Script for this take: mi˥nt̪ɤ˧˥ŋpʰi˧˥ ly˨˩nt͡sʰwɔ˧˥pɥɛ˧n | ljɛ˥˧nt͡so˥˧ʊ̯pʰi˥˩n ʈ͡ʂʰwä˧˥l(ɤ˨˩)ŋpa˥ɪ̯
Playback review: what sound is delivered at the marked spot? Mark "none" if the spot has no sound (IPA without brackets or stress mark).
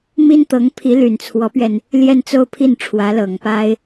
ɤ˨˩